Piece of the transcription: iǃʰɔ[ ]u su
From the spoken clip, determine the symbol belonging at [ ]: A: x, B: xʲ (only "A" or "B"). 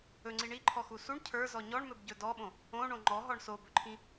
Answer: A